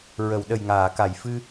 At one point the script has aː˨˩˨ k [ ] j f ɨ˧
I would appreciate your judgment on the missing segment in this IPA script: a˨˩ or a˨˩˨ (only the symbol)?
a˨˩˨